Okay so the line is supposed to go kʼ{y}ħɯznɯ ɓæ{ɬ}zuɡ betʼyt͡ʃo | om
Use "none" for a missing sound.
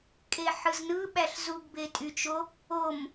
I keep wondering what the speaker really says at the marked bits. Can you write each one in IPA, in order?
e, ɬ

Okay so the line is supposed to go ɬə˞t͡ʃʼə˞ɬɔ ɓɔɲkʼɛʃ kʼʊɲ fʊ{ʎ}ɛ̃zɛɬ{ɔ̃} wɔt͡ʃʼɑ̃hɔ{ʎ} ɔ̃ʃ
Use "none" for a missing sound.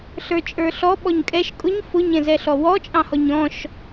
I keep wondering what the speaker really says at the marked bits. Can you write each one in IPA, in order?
ɲ, ɔ, ɲ

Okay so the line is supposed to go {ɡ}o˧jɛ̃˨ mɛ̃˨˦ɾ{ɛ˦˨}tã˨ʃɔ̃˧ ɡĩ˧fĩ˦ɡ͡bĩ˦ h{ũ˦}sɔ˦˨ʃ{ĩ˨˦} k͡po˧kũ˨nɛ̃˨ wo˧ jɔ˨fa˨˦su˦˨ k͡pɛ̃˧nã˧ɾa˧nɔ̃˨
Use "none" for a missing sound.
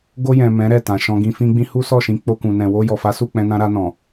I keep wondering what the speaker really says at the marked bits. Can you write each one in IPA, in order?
ɡ, ɛ˦˨, u˦, ĩ˨˦

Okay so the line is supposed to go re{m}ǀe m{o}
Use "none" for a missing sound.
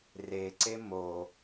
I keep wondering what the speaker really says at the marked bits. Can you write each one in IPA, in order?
none, o

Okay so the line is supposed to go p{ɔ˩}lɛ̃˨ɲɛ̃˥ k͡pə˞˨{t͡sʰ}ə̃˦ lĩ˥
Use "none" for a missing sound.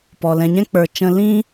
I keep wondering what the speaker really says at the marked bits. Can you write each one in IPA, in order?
ɔ˩, t͡ʃ

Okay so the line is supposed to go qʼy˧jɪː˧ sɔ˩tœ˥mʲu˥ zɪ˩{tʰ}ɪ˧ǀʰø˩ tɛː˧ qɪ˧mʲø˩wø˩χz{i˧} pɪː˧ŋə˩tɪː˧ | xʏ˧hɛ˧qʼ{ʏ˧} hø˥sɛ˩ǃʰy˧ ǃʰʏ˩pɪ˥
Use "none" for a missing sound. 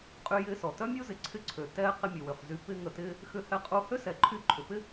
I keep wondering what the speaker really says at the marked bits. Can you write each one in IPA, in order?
ǀʰ, y˧, u˧

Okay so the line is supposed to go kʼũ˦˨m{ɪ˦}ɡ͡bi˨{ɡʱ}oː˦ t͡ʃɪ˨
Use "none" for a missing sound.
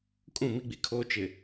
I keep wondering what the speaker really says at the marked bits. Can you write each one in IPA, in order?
i˦, kʰ

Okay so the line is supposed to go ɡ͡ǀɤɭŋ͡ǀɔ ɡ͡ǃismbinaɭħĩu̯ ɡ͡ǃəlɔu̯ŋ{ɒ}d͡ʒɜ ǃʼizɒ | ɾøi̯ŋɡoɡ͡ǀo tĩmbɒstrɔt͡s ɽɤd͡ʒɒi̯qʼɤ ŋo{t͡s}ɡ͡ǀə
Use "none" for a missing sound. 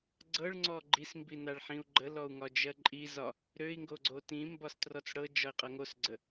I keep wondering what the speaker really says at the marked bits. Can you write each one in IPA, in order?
ɒ, s

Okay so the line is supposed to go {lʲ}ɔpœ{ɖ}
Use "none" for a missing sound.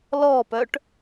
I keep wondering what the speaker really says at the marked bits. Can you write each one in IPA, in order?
l, ʈ

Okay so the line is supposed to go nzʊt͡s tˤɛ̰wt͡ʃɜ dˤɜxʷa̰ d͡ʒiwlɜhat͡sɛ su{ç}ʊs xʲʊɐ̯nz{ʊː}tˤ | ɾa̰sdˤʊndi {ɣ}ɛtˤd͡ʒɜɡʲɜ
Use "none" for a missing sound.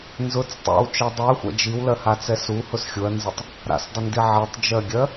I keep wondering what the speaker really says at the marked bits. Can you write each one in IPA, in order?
h, ʊ, ʕ

